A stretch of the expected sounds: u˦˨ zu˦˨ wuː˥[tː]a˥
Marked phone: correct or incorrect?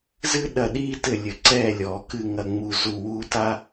incorrect: t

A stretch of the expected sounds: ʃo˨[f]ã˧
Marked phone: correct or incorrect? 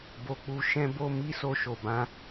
incorrect: b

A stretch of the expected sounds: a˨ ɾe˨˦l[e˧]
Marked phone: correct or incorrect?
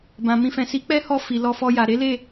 incorrect: e˦˨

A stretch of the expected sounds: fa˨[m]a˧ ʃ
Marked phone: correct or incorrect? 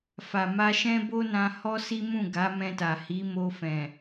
correct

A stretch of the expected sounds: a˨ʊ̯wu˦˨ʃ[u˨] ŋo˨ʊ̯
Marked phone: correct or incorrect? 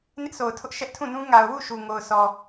correct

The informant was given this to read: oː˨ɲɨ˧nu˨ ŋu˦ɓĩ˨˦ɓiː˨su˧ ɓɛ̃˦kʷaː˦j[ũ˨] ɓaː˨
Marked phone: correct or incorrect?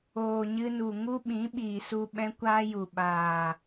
incorrect: u˨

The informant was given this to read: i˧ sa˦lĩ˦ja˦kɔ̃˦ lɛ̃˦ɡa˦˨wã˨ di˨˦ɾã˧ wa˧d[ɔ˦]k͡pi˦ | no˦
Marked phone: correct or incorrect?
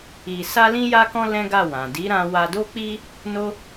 incorrect: o˦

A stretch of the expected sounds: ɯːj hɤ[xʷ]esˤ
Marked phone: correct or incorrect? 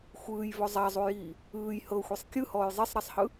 correct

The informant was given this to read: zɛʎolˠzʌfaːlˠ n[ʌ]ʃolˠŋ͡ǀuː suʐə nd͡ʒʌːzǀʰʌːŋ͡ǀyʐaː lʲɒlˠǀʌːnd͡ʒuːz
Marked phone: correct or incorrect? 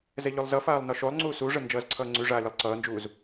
incorrect: ɒ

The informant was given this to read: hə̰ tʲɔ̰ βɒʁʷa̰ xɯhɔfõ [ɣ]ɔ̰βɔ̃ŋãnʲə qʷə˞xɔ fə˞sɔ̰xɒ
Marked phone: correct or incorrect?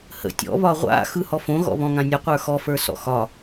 correct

